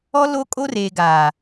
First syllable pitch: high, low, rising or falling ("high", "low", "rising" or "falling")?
high